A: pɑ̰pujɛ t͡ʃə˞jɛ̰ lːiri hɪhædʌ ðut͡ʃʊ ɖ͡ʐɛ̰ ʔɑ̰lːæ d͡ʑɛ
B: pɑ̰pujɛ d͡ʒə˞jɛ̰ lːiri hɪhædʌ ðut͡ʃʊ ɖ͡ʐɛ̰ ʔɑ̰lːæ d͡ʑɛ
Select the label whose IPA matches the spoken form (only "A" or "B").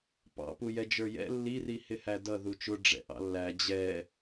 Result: B